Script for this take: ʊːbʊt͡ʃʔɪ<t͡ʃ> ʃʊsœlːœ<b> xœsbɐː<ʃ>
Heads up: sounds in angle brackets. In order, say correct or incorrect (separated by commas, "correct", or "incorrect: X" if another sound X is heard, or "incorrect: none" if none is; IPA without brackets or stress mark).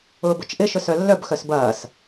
incorrect: none, correct, incorrect: s